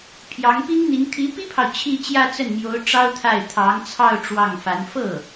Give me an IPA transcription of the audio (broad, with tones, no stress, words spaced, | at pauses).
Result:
pʰjɑ˧˥ŋpi˥ŋn̪i˧˥ŋ t̪ʰi˧˥pi˥pʰɑ˨ʊ̯ t͡ɕʰi˥˧t͡ɕjä˥˧t͡sə˥˩nmjo˧˥ʊ̯ ʈ͡ʂɑ˥ʊ̯t̪ʰa˥˩ɪ̯ t̪ʰɑ˧˥ŋt͡sʰɑ˥˧ʊ̯ ʈ͡ʂwɑ˥˩ŋfa˧˥n fɤ˥˩